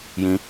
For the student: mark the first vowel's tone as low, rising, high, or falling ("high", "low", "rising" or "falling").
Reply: rising